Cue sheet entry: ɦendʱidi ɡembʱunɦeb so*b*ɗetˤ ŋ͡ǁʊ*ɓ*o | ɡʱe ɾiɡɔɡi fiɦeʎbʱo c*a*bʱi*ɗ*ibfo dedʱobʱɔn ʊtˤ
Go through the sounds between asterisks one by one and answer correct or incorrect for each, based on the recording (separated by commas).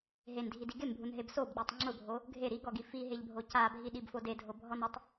correct, incorrect, correct, correct